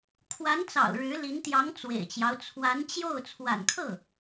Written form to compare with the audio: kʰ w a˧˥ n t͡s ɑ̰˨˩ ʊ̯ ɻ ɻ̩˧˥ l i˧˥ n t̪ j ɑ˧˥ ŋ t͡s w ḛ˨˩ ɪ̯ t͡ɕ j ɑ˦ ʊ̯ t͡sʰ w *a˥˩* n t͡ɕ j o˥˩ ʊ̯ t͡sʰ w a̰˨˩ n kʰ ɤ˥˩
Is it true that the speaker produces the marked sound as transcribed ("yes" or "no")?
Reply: no